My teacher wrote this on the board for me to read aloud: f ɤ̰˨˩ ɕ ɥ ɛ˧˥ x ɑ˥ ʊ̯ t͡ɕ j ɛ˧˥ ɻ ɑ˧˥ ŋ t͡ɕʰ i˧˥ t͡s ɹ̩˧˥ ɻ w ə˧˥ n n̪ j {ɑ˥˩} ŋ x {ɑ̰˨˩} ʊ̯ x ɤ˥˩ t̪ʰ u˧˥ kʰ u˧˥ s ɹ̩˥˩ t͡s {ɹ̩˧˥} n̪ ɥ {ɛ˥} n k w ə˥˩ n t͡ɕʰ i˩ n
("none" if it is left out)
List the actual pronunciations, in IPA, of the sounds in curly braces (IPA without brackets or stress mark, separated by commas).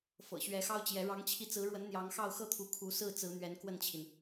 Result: ɑ˧˥, ɑ˥˧, ɹ̩˧˥, ɛ˧˥